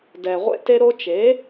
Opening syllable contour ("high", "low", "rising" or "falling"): low